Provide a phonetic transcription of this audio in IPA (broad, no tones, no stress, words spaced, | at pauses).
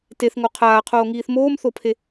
teθŋo qʰaːqʰoːŋiːθ moːmθopʰe